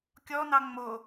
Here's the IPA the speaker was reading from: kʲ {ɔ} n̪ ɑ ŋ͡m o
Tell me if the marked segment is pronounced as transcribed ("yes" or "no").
yes